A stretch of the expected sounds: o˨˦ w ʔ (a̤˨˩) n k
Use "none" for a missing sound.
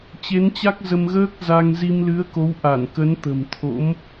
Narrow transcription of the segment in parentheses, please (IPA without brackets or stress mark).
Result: a˧˩